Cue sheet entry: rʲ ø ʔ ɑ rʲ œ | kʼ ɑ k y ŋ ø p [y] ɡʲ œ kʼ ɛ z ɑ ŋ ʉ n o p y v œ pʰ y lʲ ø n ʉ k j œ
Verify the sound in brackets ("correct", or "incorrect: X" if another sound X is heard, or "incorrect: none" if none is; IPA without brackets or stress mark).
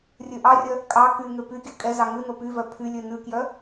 correct